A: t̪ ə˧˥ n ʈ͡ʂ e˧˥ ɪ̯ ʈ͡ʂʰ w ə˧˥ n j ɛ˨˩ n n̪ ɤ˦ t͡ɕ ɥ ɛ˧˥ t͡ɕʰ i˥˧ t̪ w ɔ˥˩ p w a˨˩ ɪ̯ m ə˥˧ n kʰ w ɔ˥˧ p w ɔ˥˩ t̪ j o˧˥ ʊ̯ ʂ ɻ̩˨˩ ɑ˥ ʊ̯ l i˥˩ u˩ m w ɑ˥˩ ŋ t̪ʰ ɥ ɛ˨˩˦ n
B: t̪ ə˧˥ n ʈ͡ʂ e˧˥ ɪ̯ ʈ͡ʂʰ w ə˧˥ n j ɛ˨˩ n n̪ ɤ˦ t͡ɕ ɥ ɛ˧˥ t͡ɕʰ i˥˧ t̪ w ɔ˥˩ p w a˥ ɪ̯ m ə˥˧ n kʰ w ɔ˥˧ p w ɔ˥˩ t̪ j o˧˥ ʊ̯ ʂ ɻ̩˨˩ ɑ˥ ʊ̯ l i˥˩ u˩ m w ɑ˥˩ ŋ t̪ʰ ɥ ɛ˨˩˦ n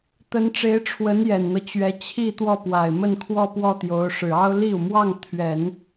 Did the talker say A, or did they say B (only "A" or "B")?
A